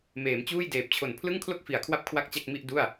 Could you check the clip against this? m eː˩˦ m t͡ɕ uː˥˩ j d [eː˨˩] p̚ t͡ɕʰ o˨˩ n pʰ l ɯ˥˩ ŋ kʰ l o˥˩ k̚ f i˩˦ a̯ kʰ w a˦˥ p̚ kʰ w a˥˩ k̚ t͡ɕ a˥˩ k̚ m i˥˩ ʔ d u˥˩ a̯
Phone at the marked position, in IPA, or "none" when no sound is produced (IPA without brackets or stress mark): eː˨˩